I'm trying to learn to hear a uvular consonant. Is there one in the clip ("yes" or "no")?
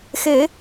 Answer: no